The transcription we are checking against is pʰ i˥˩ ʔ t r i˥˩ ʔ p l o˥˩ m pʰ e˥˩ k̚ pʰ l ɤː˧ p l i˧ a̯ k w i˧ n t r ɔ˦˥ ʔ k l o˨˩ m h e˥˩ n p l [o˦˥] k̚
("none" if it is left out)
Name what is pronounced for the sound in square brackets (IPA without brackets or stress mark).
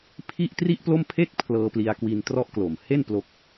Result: o˦˥